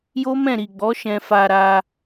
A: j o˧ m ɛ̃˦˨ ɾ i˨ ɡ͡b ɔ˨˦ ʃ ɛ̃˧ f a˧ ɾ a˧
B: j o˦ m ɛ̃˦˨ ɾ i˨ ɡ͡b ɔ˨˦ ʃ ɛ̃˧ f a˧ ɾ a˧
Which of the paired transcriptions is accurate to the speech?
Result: B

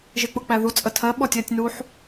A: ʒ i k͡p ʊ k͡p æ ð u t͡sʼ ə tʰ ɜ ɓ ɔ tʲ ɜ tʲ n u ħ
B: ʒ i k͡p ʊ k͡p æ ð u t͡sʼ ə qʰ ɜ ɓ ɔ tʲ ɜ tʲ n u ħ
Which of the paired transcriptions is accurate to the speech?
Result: A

